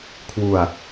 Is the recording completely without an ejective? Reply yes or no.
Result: yes